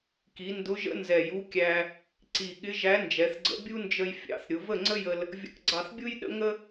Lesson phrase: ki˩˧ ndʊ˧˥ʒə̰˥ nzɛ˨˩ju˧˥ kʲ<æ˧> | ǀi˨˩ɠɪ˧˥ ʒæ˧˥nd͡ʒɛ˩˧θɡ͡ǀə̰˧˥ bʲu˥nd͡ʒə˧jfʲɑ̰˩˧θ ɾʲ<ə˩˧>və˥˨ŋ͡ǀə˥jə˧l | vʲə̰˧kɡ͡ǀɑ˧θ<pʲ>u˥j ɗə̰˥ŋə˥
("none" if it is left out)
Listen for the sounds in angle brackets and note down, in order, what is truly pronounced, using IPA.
æ˧, ʊ˩˧, bʲ

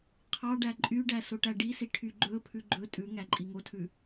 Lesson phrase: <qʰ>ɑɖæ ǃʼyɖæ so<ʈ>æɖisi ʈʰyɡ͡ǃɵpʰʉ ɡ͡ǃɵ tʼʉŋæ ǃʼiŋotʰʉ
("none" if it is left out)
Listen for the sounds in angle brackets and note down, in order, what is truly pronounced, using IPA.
qʰ, ʈ

